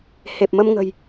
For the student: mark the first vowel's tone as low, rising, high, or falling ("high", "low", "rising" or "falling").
low